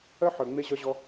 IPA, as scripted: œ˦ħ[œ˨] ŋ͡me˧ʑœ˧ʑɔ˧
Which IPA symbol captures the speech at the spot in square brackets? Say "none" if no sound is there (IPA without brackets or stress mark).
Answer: œ˨